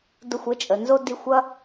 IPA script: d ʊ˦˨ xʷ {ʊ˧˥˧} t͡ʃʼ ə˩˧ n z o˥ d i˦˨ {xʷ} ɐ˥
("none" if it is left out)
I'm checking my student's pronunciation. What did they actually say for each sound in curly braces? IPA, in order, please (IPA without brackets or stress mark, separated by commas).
ə˧˥˧, xʷ